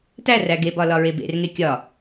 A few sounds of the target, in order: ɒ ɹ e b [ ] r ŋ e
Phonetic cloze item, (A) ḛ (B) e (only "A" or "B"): A